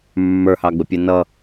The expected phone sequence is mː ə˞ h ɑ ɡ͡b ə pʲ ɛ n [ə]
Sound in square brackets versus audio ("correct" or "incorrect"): incorrect